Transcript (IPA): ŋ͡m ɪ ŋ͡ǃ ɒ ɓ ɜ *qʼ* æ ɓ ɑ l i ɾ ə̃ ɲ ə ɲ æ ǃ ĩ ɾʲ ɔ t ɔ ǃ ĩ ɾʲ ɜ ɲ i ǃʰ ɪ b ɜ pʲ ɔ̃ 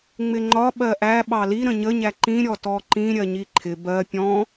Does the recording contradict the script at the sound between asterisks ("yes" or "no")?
yes